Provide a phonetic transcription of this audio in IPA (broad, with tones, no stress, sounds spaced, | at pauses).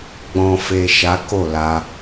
ɡ͡b ɔ̃˨ f e˨ ʃ a˨˦ k o˦˨ l a˧